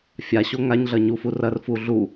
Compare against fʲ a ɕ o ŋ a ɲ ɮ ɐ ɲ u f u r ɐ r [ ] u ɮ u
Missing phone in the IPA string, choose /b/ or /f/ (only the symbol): f